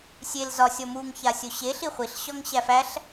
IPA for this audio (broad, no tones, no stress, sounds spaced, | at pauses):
sʲ e l z ɒ sʲ ɔ m u ŋ ç a sʲ o ɕ e ɬ i χʷ i ɬ ɕ ɒ ŋ ɕ æ f æ ɬ